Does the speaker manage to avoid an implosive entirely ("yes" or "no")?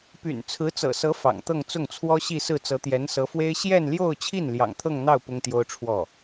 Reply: yes